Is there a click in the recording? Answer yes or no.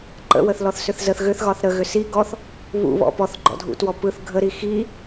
yes